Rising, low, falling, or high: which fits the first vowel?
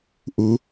rising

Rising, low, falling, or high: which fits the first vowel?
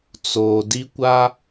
low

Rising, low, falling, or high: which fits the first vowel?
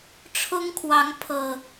high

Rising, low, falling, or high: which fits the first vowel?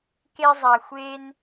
high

